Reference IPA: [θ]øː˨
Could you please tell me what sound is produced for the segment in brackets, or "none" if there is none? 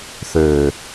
θ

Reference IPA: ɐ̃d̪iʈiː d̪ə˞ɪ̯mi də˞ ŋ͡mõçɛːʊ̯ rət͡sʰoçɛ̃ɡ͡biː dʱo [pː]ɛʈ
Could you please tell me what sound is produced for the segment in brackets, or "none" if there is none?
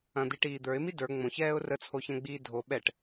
ɓ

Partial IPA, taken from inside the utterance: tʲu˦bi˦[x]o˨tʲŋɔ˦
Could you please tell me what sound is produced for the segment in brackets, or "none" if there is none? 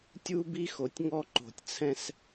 x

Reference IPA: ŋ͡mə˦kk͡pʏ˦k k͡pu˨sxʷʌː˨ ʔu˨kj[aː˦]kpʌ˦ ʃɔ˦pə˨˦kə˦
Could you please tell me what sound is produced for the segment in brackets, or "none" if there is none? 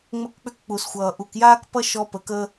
aː˦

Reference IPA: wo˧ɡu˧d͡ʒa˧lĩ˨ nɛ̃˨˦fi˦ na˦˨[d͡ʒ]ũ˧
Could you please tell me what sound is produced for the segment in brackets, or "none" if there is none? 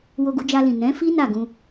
ɡ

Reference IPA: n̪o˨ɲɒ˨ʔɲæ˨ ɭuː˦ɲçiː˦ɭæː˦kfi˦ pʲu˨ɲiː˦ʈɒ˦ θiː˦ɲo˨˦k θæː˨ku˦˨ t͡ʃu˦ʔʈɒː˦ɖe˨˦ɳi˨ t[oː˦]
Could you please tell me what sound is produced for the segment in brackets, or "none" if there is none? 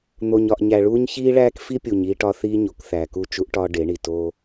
oː˦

